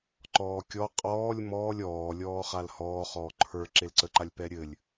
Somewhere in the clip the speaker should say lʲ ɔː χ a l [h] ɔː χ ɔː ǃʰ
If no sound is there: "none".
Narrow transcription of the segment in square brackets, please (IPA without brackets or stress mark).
h